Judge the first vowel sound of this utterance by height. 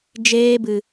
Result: mid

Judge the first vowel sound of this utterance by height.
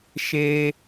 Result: mid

